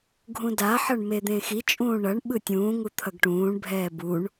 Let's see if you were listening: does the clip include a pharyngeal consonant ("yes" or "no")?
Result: yes